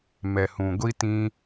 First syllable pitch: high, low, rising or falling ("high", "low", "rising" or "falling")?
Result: low